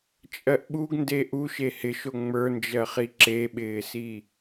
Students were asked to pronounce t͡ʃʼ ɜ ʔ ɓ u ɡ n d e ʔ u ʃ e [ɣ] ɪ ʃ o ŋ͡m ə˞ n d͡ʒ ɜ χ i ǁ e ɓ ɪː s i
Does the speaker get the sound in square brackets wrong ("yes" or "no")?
yes